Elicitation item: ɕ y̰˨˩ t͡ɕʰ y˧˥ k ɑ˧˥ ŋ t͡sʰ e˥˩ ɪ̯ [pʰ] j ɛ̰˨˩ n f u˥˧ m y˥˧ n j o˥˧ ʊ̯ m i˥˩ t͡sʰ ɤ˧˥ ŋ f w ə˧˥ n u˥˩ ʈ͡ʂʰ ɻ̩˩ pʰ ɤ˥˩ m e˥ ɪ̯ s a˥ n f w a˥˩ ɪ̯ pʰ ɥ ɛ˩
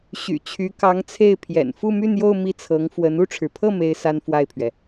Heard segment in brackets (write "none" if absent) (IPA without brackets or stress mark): pʰ